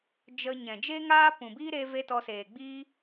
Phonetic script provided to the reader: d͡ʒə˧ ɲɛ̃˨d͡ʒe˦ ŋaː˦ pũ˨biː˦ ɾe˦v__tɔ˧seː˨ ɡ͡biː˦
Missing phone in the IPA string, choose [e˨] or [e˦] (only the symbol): e˦